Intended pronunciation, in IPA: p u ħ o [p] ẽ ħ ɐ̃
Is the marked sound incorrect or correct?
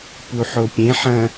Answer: incorrect